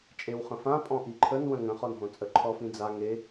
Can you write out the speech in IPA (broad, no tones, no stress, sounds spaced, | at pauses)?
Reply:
t͡ʃʼ e w χ ə̃ f ã pʼ ɔ̃ ʔ i ǃʰ ə n w ə̃ ŋ ə̃ χ ɔ n ɦ õ t͡sʼ ə ǃʰ ɔ f ĩ d͡z a ŋ e